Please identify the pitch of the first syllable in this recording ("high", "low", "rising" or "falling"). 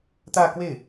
falling